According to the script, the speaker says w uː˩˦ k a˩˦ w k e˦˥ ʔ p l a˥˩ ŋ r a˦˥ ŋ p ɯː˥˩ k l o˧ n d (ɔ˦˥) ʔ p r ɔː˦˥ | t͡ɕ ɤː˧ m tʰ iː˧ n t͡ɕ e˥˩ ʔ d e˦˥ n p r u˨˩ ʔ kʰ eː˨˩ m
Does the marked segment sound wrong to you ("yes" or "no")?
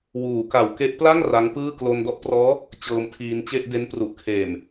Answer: yes